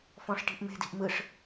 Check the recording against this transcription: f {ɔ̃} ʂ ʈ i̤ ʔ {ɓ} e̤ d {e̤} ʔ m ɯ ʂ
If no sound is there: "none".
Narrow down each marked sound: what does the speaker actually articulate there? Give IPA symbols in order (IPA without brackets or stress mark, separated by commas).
ɔ̃, m, i̤